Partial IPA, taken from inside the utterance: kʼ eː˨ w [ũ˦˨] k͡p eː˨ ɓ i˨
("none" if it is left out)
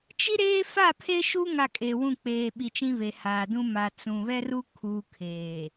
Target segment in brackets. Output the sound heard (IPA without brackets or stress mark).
ũ˦˨